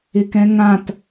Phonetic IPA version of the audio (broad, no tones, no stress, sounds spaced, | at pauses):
ɪ k ɛ̃ ŋ ã t